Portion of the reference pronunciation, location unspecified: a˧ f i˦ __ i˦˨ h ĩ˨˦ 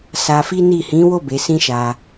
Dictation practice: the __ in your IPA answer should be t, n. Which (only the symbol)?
n